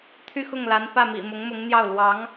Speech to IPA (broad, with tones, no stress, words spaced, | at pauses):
t̪ʰy˥˧xʊ˥˩ŋla˧˥n pä˥˩mḭ˨˩ mʊ˧˥ŋmʊ˧˥ŋn̪jɑ˥˩ʊ̯ lwɑ˧˥ŋ